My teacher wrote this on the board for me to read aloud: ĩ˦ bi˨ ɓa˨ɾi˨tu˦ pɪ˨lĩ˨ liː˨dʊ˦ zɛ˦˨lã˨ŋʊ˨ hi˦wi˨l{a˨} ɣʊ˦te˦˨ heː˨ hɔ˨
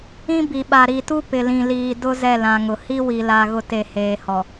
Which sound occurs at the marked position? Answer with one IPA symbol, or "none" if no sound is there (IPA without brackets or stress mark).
a˨